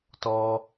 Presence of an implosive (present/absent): absent